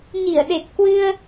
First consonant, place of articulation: palatal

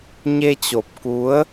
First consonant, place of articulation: palatal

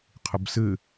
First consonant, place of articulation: uvular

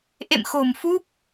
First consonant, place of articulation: glottal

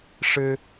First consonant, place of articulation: retroflex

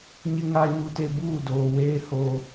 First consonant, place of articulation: palatal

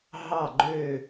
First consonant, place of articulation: glottal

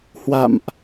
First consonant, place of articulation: glottal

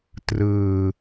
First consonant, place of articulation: alveolar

